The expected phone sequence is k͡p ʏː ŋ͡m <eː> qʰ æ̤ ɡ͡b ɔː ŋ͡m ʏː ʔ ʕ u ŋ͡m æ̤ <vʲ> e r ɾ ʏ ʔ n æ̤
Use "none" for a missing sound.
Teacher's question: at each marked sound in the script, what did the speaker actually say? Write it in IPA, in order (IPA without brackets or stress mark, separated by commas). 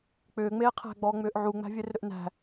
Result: eː, vʲ